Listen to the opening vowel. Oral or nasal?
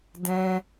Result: nasal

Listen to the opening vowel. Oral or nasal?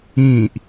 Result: nasal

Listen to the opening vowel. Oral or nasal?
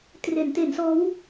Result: oral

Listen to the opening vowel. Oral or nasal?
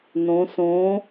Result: nasal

